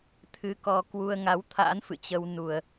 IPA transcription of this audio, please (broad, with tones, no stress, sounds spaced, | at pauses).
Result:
t̪ʰ ɨ˧ k ɔ˧ k w u˧ ə̯ ŋ a˨˦ w t̪ʰ a̰ː˧˥ n f ɨ̰˧˨ t͡ɕ ə˧ w n u˨˩ ə̯